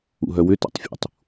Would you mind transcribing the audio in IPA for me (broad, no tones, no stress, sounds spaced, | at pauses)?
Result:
ṵ ɦ œ w ʏ t a̰ tˤ fʲ ṵ tˤ